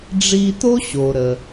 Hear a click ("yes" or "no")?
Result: no